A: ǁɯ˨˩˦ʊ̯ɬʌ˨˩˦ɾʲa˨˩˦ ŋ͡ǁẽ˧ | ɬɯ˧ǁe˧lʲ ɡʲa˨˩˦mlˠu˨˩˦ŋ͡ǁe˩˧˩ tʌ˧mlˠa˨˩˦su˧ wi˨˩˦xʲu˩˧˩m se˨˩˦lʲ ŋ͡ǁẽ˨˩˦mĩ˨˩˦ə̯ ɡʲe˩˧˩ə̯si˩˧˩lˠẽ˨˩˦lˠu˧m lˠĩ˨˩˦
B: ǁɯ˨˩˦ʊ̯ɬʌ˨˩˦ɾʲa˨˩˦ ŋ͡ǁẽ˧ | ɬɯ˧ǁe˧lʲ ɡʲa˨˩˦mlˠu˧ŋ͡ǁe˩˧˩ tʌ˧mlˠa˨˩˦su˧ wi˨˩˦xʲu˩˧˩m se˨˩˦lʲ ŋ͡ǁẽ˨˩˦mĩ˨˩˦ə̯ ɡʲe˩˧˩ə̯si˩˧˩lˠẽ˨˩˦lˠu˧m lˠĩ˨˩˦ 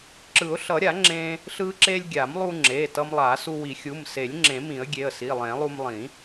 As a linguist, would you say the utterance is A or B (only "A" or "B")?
B